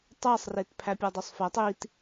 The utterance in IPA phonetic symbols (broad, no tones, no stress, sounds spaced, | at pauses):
tˤ æ sˤ r e t pʰ æ pʲ ɒ dˤ o sˤ f æ tˤ i t